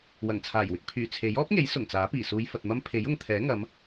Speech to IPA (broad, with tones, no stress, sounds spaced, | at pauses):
w ɐ˨˩ ŋ t͡sʰ aː˨˩ j w ɪ˧ k̚ pʰ yː˨˩ t͡sʰ e˨˥ j ɔː˥ p̚ ŋ e˨˥ j s ʊ˨˩ ŋ t͡s aː˨˥ p iː˨˩ s uː˨˧ j f ɐ˨ t̚ m ɐ˥ m pʰ e˨˥ j ʊ˨ ŋ t̪ʰ ɛː˨˥ ŋ ɐ˨˧ m